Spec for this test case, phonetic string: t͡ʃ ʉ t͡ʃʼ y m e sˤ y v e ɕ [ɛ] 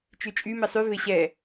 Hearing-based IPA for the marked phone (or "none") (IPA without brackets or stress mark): ɛ